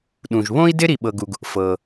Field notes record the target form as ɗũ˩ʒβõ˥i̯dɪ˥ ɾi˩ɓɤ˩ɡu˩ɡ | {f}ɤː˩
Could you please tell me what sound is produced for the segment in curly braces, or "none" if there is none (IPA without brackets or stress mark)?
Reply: f